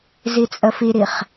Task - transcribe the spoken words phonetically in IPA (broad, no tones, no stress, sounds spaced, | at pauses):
z i t͡sʼ ə f i ɾ i χ